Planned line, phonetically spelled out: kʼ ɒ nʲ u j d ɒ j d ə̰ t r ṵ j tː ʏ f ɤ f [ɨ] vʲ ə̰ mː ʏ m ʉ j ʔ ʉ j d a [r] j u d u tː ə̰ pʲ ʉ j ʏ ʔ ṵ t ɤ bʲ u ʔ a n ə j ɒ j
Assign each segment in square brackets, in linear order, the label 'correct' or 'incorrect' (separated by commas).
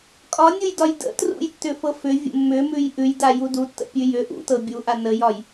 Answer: incorrect, incorrect